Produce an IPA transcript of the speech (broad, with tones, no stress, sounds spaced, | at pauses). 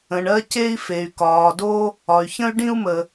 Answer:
ə̃˩ ɳ ɜ˧ c e˧ i̯ f e˩ y̯ k ɒː˩ d o˧ | ɒ˩ y̯ ç ə̃˧ y̯ ɖ ĩ˧ u̯ m ə˩